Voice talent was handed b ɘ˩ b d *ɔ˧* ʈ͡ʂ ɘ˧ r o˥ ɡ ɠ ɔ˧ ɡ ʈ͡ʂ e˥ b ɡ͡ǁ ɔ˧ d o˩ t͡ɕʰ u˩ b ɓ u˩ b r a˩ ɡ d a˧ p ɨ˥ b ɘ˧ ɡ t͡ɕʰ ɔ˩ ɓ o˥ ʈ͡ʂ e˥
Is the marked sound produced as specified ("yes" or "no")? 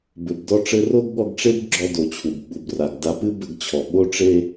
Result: yes